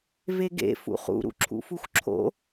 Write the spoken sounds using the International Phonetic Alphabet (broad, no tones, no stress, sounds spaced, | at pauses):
v e ɡ ḛ f ṵ χ ṵ ɾ ṵ ǁʰ ṵ f u xʷ ǁʰ o̰